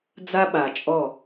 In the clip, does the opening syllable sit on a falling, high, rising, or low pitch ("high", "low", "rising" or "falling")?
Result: high